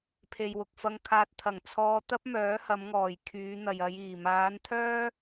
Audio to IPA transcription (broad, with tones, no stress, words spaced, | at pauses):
pʰe˨jwʊ˨k̚fɐ˧ŋkʰaː˧t̚ t̪ʰɐ˨˩ŋt͡sʰɔː˧t̪ɐ˥p̚ mœː˨˥hɐ˨˧mŋɔː˨˩j kʰyː˨˧n̪ɐ˨jɐ˨˧jiː˨˩ maː˨˧nt̪ʰœː˥